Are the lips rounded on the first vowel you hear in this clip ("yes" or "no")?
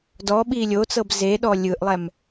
yes